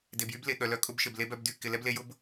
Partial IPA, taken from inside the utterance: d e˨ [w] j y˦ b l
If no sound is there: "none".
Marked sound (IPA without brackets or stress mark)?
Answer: b